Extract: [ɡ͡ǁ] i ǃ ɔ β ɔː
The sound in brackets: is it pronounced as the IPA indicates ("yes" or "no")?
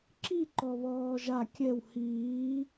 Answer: no